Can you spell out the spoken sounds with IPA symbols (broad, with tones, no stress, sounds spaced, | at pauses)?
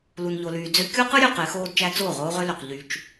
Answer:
l u˨ n ʎ o˨ l yː˨ d͡z ø˦ kʲ o˦ q ɯ˦ ɾʲ ø˨ q e˨˦ x oː˦ d t͡ʃ æ˦ t͡s oː˦˨ ʁ oː˦ ʁ ø˦ l ø˨ q ʎ y˦ t͡ʃ